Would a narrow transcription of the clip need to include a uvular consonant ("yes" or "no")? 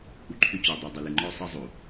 no